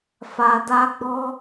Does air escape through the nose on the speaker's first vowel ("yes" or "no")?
no